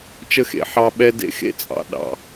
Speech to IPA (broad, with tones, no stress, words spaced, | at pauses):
t͡ʃə˦xḛ˨ ħɑ˦ ɓɛ˦dḛ˦ xḛ˦t͡sʼɑ̰˨ ɗɑ̰˨